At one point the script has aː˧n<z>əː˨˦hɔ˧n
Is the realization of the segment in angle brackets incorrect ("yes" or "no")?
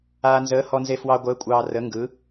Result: no